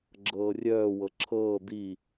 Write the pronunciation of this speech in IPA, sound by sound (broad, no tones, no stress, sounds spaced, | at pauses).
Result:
ɡ͡ǁ ɤː rʲ œː w ɤ ǁʰ ɤː d̪ i